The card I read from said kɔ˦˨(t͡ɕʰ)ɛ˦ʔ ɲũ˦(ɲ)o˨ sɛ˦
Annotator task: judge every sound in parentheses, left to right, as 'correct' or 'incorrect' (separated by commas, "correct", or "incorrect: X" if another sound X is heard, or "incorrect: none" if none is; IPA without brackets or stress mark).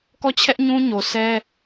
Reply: correct, correct